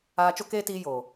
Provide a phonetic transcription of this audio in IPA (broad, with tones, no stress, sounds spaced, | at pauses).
aː˧ t͡ʃ o˦ k eː˦ t iː˦ j oː˨